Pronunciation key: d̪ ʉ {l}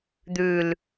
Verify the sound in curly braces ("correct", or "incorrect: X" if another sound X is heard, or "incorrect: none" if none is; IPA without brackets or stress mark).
correct